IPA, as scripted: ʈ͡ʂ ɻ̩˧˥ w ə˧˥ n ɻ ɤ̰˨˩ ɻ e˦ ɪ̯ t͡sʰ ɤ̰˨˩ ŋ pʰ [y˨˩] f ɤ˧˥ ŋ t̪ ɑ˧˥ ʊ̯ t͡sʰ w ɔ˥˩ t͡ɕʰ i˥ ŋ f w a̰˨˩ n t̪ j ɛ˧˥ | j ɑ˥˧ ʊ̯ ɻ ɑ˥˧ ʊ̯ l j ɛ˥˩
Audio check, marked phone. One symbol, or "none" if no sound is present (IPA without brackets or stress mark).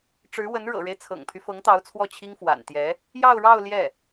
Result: y˦